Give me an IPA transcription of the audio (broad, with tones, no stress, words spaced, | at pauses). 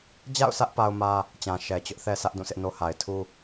d͡ʑa̰˦˨ʊ̯sä˦ʔ pa˦ʊ̯mä˦ | t͡ɕã˨ ʃɛ˨t͡ɕʊ˦ʔ θɛ˦sä˦ʔ dũ˦˨sʰɪ˦ʔno˦ ha˨ɪ̯tʰu˦